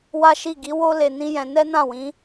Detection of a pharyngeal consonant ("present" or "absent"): absent